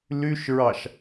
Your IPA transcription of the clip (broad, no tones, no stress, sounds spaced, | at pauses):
l y ʃ ɹ ɑ ʃ